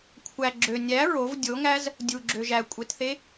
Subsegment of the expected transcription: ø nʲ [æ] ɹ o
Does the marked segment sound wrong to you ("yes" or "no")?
no